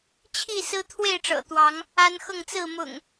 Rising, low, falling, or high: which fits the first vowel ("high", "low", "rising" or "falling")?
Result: falling